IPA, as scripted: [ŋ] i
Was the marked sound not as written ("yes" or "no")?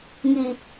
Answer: no